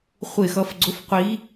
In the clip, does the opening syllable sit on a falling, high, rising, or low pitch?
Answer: falling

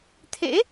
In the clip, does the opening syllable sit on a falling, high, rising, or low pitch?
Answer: rising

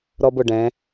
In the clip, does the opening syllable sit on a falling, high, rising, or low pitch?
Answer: high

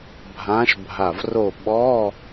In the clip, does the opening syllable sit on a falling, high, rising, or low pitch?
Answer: rising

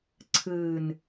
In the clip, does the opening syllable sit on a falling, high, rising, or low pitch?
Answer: low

